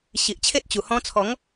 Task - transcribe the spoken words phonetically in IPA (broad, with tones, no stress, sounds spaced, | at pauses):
ɕ i˨ ʔ t͡ɕʰ e˦ t̚ t͡ɕ u˨˩ h ɔ̃˧ t͡sʰ ɔ˨˦ ŋ